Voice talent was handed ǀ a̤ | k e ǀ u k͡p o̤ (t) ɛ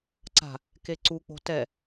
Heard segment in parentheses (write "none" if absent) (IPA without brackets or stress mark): t